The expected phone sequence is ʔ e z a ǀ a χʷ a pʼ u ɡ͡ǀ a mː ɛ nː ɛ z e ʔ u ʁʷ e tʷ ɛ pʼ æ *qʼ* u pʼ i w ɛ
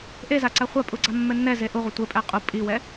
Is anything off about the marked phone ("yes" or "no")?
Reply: no